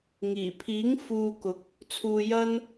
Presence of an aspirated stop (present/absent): present